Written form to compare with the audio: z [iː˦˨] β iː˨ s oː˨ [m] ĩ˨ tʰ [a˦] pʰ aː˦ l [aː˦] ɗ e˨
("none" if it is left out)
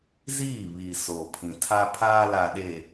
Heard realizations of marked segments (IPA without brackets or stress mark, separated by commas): iː˦˨, pʰ, a˦, aː˨